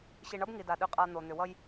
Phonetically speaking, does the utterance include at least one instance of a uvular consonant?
yes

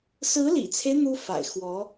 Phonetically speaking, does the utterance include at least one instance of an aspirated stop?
yes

